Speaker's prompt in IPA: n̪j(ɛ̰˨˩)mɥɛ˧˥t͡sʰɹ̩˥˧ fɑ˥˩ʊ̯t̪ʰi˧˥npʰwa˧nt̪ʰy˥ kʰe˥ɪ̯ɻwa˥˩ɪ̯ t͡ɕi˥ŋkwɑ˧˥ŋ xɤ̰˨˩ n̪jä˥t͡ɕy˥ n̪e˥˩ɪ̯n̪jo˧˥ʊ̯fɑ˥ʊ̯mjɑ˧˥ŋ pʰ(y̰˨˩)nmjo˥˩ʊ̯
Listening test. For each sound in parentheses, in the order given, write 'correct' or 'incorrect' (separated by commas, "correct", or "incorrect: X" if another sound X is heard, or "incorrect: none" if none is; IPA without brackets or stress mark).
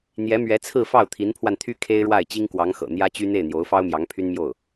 incorrect: ɛ˧˥, incorrect: y˥